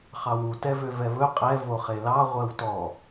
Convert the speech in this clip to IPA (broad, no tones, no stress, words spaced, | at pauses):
χɑwu tɛvøvɛβɵ qʼɛ voχelɑ ʁʷɛwtɔ